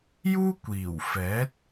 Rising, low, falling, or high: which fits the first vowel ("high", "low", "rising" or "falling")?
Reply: high